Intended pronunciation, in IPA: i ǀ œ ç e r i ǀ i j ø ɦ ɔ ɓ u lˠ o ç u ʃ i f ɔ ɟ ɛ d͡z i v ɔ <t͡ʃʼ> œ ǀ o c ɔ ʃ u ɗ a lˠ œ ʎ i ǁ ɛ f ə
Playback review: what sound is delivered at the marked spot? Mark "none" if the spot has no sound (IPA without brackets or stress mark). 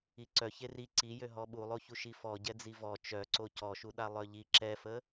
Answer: t͡ʃ